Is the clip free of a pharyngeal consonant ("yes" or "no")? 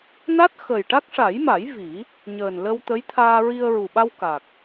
yes